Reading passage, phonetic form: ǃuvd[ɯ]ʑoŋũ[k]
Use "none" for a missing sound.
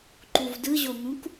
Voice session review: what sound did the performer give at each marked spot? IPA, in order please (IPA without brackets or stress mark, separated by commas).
ɯ, k